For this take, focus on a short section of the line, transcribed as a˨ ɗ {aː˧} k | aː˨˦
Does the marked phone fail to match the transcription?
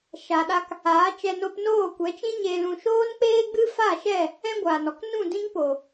yes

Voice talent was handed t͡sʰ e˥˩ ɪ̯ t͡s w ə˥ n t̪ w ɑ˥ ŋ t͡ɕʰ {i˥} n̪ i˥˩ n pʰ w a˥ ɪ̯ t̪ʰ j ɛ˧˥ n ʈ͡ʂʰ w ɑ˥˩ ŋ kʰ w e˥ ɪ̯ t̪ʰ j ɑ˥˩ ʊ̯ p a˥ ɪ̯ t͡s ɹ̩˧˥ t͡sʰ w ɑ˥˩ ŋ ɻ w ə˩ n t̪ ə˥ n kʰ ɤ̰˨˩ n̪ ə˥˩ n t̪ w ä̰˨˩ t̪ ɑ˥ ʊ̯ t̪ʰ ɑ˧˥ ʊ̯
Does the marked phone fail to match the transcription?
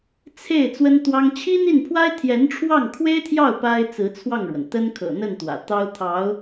no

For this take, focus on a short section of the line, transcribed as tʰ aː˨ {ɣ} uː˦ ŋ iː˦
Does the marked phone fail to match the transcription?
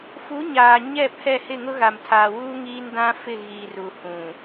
yes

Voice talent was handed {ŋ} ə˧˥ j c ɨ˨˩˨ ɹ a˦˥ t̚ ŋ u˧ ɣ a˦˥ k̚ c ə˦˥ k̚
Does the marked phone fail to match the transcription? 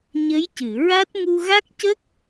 yes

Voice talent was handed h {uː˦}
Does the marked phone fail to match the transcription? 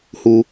yes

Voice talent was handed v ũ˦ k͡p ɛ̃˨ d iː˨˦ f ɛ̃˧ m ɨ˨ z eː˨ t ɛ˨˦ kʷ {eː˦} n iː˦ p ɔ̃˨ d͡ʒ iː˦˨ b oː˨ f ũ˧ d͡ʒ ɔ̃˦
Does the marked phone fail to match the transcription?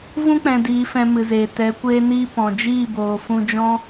no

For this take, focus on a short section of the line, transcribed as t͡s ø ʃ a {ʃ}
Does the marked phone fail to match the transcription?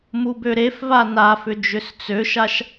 no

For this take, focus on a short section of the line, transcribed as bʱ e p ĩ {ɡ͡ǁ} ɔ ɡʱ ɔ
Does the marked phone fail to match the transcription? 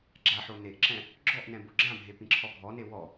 yes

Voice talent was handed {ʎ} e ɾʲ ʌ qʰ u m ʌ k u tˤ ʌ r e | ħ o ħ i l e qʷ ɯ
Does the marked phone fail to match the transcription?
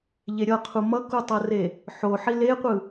no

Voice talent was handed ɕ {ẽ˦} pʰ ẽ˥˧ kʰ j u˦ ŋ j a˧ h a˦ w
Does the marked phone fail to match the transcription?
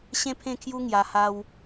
no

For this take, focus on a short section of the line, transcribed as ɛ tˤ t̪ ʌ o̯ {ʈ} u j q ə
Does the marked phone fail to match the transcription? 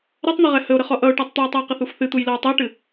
yes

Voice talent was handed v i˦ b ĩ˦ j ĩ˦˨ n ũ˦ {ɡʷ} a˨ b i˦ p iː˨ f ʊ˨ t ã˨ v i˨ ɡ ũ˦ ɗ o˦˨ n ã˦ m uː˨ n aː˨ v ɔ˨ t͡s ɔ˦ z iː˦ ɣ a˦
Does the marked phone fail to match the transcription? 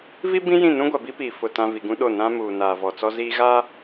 no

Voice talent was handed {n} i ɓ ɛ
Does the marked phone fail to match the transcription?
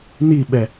no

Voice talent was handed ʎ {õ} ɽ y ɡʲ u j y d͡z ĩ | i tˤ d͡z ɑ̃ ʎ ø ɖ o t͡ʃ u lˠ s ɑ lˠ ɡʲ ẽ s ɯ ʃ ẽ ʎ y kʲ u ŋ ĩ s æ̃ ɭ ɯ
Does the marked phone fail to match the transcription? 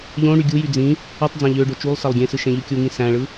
no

